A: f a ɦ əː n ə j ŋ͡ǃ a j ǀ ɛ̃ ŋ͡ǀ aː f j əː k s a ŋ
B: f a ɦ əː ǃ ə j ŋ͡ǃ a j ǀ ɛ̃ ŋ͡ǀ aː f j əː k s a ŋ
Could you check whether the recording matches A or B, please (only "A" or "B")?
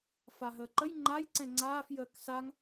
B